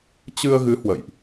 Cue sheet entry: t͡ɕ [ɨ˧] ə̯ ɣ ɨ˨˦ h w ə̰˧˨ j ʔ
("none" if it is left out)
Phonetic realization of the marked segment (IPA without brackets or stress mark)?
ɨ˧